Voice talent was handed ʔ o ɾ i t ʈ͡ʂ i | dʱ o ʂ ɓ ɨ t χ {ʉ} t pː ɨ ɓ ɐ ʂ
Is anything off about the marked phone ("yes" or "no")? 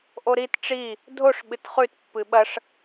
no